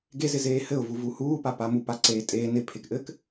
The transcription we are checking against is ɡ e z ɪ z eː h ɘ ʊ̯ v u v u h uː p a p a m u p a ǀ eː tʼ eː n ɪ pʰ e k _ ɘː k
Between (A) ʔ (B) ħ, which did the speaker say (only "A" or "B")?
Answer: A